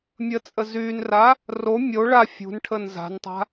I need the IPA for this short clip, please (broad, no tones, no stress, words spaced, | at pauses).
mʲət͡sʼə zynra | ro mʲo ɭa fʲṳnʈʰən za̤ntˤa̤